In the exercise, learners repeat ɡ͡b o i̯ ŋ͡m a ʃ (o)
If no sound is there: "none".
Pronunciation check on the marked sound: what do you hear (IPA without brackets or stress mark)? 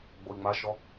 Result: ɔ